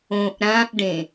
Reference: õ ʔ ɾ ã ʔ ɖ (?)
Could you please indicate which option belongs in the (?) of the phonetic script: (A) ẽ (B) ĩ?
A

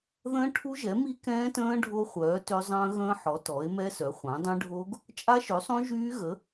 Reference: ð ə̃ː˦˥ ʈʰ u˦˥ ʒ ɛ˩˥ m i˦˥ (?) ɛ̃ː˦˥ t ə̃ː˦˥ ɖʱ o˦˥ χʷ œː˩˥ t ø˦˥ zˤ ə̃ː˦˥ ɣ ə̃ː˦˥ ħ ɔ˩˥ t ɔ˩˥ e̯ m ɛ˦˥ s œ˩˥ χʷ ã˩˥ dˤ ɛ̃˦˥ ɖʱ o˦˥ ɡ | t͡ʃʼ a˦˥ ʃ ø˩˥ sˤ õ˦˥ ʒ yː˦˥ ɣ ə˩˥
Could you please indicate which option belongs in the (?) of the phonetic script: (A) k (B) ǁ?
A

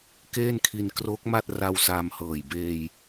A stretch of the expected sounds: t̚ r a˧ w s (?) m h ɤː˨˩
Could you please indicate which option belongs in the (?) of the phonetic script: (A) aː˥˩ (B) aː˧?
B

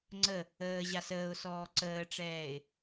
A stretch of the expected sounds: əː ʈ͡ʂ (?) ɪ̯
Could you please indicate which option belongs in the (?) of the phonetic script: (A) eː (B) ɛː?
B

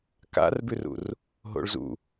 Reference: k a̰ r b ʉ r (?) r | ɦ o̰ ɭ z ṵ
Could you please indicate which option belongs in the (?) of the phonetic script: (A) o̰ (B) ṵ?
B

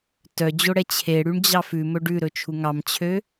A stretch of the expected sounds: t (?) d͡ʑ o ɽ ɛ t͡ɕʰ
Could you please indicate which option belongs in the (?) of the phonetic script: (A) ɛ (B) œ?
B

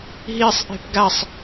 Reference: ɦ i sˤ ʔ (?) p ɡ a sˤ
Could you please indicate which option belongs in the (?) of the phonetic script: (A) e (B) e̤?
B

